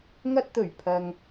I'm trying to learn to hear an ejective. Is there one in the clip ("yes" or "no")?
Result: no